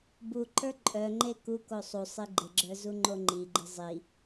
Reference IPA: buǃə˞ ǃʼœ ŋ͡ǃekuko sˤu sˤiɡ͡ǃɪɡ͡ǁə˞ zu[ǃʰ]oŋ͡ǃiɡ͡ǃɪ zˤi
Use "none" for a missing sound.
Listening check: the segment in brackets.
ŋ͡ǃ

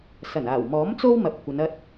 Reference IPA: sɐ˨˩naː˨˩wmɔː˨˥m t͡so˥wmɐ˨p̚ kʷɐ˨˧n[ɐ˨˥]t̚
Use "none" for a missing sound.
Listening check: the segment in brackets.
ɐ˧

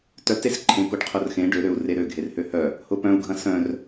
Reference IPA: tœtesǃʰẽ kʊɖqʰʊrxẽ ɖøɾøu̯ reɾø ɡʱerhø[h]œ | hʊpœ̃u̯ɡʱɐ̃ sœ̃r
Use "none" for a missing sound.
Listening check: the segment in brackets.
h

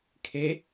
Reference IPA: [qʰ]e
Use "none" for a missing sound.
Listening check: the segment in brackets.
kʰ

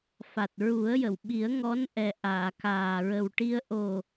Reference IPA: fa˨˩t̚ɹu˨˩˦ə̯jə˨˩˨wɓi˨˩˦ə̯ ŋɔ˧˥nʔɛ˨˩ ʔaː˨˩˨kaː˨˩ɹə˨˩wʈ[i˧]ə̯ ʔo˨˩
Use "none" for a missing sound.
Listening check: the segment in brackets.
i˧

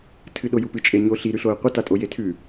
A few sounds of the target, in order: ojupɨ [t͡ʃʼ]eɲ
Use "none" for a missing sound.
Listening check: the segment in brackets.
t͡ʃʼ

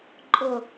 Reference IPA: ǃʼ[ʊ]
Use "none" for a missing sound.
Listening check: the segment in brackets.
ʊ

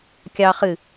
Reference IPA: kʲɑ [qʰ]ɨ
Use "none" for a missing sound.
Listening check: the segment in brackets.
χ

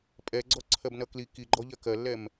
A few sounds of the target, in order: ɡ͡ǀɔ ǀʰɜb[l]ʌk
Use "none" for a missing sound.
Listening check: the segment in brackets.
n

